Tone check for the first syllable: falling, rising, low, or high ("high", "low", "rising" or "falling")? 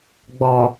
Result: low